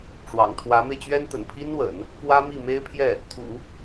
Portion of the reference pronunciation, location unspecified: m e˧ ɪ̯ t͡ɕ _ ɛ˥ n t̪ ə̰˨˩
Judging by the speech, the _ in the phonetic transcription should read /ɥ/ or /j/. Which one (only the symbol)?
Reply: ɥ